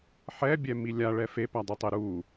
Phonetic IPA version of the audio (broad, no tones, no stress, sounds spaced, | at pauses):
ħ ɛ bʲ ɛ m i lʲ a ɭ ɛ f e p æ dˤ i tˤ e ɾ u